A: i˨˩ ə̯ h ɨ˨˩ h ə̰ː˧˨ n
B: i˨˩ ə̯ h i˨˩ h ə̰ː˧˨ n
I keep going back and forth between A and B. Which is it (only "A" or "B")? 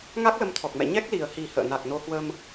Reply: B